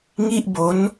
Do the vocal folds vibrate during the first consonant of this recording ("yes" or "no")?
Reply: yes